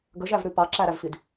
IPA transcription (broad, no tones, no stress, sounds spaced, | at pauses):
ɡ ə ʒ æ v ɾ ʉ p ɑ ǁ æ ɾ æ v f i d